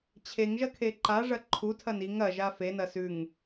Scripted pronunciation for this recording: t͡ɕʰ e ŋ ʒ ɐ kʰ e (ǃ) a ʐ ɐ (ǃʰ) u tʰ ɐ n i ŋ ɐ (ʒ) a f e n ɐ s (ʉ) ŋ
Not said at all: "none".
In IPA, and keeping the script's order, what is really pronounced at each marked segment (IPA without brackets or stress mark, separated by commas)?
ǃ, ǃʰ, ʒ, ʉ